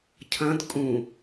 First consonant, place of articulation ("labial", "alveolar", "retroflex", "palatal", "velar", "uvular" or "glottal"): palatal